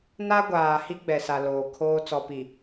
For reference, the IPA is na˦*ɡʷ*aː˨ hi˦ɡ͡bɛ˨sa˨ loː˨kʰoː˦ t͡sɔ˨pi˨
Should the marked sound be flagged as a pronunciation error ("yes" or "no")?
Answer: no